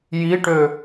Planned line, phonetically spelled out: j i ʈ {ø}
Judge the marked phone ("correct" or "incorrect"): correct